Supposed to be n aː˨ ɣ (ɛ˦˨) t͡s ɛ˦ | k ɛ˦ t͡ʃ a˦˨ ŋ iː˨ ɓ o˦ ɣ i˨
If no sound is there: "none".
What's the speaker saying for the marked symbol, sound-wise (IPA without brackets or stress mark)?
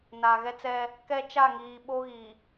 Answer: ɛ˦